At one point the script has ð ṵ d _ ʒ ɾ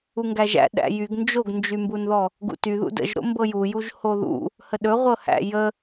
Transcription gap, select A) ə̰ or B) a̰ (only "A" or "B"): A